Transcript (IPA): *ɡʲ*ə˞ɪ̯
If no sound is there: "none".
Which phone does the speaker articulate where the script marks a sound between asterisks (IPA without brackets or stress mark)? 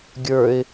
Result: ɡʲ